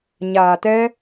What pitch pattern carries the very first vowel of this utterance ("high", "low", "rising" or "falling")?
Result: low